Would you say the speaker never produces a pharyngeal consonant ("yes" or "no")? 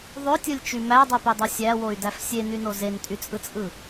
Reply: yes